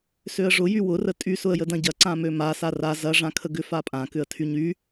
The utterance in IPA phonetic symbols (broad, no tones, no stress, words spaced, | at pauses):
søə̯ʐʊ jywʊ rətʼy sʊə̯jədɐ̃ɟɐ ǀãmøma sara zɐ ʐãkʰəɡʏ fapʼã kʏə̯tʰyɲy